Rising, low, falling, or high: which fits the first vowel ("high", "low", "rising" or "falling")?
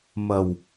low